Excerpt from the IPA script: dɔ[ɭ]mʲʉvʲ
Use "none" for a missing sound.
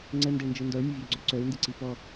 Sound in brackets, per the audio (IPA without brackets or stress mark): ɭ